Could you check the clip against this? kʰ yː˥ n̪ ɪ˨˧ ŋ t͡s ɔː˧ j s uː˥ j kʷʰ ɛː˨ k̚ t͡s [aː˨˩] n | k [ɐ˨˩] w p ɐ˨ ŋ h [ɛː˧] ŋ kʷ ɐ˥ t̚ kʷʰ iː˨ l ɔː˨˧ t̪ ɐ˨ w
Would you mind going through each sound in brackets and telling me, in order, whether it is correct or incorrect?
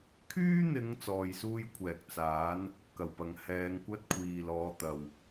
incorrect: aː˨˥, correct, incorrect: ɛː˨˧

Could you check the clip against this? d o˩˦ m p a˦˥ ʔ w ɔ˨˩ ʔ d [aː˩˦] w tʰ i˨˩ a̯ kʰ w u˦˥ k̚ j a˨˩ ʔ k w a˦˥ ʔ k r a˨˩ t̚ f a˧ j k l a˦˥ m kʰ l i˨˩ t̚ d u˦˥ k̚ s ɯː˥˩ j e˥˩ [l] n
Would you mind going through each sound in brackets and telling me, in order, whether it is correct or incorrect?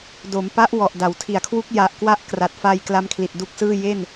incorrect: a˩˦, incorrect: none

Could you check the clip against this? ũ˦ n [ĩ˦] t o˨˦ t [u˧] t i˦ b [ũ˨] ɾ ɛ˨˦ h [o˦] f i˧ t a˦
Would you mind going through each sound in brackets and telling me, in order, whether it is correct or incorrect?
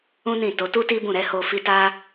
incorrect: ĩ˦˨, incorrect: u˦, incorrect: ũ˦˨, incorrect: o˧

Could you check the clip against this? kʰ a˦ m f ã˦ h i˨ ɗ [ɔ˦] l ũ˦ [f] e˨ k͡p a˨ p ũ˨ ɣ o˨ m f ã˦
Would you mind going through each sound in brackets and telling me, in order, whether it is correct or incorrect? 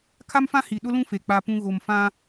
incorrect: ʊ˦, correct

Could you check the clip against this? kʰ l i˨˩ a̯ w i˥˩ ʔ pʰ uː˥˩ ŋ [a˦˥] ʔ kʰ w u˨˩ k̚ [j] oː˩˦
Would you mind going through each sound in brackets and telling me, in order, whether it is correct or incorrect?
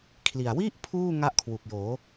incorrect: a˥˩, correct

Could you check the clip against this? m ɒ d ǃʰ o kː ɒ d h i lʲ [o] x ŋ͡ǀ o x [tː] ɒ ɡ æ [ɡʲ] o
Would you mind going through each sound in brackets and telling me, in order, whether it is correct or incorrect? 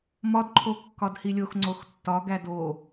correct, correct, incorrect: d

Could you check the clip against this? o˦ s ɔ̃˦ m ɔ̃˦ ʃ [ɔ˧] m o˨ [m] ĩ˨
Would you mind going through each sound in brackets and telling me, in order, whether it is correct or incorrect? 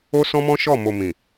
incorrect: ɔ˦˨, correct

